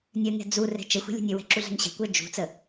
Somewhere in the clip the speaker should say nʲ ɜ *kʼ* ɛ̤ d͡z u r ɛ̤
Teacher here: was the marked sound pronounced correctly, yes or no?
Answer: no